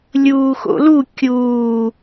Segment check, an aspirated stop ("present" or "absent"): absent